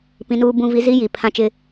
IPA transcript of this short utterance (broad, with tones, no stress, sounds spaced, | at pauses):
p ĩ˨ n uː˨ b ũ˨ v i˨ z i˦ j i˨ pʰ ã˦ t͡ʃ ɪ˦